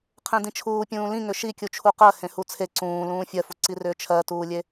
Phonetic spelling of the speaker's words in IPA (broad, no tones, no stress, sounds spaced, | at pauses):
qʰ ẽ d ĩ t͡ʃʰ uː pʲ ũː l ĩ ŋ ʏ ʃ i kʲ u t͡ʃʰ u q ɜ h ẽ h u t͡sʰ e ǀ ũː l ũː fʲ ɜ f u ǀ i r ʏː t͡ʃʰ ɜ t uː lʲ e